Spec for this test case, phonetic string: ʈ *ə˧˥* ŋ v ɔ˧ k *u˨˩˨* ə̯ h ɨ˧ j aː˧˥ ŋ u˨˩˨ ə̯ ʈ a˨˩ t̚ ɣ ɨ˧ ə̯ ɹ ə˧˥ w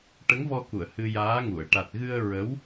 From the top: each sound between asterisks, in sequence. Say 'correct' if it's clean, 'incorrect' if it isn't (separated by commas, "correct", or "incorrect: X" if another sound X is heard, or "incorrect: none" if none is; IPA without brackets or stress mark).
correct, correct